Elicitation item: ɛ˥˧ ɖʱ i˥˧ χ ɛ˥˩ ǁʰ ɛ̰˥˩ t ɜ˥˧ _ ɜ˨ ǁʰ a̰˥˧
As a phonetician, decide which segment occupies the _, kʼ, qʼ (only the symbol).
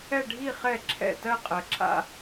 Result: qʼ